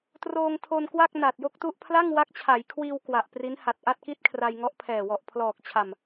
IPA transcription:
troː˧ŋtʰo˧nkwa˥˩k̚ na˨˩t̚jo˥˩k̚tu˥˩ʔ pʰla˥˩ŋwa˦˥k̚t͡ɕʰa˩˦jkʰwiː˧w kwa˨˩ʔpri˦˥nha˨˩t̚ ʔa˥˩t̚ki˥˩t̚kʰra˧j ŋɔ˦˥ʔpʰɛː˨˩ wɔ˨˩ʔpʰlɔː˨˩k̚t͡ɕʰa˨˩m

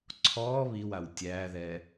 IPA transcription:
ǀʰɔː βiwaw tʲæːðɛː

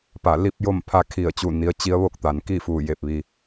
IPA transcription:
pa˧˩li˥˨p̚jo˥˨m pʰa˧kʰi˧˩ə̯ t͡ɕu˧˩ni˩˧ə̯ t͡ɕi˧˥ə̯ʋo˥˨k̚t̪a˩n ki˥˨fu˧˩je˧˩p̚ʋi˩

